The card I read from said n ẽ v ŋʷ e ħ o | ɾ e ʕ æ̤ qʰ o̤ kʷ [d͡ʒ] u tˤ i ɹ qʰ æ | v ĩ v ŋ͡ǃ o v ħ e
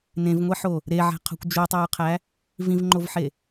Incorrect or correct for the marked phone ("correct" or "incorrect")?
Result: correct